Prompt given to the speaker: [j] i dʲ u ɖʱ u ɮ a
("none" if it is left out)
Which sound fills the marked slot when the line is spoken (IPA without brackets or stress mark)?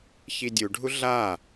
ç